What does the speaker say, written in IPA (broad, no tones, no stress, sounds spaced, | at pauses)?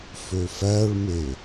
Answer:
f ø f æ ɭ m e